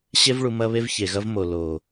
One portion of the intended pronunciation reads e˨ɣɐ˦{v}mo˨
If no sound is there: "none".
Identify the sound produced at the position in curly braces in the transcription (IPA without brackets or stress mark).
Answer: v